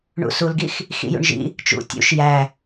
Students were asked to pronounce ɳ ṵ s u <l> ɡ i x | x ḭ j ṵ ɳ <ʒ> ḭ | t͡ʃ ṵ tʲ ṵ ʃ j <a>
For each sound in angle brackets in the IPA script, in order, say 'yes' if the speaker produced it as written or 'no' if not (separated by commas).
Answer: yes, yes, no